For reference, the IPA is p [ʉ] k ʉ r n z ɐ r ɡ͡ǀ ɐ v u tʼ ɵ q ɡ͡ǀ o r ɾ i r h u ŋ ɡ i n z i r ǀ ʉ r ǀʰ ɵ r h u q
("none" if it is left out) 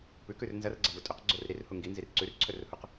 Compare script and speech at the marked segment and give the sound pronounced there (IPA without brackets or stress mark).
ʉ